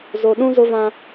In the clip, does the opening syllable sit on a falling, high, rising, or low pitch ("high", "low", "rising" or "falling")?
low